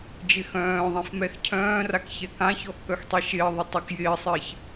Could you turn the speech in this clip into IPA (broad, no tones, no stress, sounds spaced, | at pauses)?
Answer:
d͡ʒ ɪ x œ̃ː ðˤ ĩ f m ɛ x cʰ œ̃ː r a k ç ɛ k ã ç ɔ x k œ x tˤ ɛ ʃ ɪː ðˤ ə tˤ œ k j ɪː sˤ ɪː ç